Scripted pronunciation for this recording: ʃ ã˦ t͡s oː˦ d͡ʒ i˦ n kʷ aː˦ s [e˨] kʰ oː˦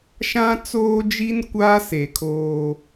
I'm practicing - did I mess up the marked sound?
no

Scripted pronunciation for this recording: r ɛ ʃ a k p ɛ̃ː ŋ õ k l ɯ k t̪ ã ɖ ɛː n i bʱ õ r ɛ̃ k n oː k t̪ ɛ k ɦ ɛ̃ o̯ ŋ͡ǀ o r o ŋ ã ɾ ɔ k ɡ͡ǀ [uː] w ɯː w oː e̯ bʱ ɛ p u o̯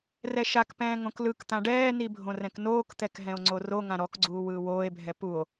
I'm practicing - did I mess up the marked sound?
no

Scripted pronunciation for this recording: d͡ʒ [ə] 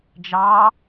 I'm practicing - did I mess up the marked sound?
yes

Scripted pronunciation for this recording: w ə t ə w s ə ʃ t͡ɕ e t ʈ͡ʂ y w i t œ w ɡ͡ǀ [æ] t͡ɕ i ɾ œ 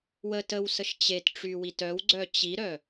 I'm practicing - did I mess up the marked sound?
yes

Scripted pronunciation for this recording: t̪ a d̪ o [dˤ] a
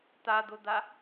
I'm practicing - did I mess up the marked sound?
yes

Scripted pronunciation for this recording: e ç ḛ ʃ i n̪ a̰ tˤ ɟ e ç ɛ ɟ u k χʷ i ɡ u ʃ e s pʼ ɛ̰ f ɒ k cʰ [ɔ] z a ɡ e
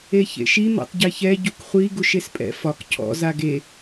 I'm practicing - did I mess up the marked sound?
yes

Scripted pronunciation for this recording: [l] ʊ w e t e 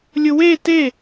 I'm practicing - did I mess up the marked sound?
yes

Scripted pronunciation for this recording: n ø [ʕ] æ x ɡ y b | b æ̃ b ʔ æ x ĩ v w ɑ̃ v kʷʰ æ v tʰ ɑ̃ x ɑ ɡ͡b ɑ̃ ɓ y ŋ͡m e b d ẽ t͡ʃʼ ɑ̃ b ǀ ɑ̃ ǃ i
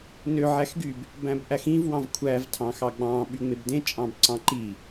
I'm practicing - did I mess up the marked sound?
no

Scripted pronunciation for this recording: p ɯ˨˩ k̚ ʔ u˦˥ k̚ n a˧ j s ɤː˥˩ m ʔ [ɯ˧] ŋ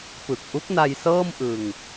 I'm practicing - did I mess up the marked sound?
no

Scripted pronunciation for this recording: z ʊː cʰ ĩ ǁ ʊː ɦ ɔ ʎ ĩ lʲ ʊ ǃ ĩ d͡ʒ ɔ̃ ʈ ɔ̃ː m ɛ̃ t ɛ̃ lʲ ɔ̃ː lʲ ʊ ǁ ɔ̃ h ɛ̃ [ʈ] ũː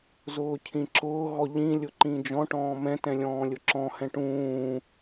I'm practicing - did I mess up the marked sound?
no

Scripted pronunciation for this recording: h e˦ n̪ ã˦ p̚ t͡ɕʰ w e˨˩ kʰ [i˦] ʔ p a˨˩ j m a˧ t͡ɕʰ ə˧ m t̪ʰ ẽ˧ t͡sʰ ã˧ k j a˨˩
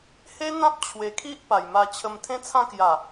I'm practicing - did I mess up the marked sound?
no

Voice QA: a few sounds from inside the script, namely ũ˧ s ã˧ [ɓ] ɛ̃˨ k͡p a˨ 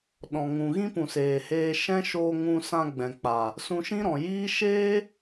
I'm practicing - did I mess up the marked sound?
yes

